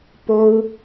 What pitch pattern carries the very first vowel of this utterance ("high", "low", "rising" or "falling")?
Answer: high